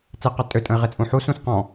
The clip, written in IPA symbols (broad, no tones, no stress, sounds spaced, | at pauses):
t͡s e q ɔ tʼ ø tʼ ə̃ ɪ̯ ʁ e t͡sʼ ũ ħ u s ũ s q ɔ̃